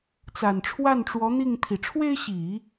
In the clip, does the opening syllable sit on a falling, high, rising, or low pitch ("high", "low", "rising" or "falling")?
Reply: low